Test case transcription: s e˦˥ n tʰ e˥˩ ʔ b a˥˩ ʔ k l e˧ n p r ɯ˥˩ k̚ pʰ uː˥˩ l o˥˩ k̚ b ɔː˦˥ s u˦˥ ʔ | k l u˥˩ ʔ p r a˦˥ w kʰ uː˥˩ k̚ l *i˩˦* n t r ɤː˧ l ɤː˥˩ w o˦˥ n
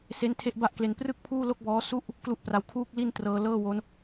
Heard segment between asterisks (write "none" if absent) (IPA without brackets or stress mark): i˥˩